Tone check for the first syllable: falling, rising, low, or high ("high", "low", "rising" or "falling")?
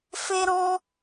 high